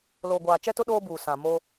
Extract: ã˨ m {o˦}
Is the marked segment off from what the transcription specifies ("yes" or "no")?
no